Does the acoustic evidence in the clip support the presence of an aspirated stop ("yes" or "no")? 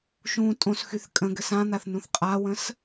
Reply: no